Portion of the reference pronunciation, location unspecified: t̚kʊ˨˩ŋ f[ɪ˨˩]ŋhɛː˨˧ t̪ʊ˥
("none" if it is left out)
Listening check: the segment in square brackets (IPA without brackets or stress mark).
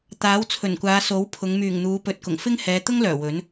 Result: ɪ˥